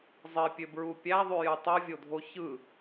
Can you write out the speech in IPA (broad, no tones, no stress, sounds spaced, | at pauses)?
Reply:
zˤ e pʲ ø b ɹ u pʲ æ ðˤ y j ɯ tˤ ɯ vʲ o dʱ o ç ɯ